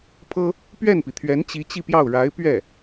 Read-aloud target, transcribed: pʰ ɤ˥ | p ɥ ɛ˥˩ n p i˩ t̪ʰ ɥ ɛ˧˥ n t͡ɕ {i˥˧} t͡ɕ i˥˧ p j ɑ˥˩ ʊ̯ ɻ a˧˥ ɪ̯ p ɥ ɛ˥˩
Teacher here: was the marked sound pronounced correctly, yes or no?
no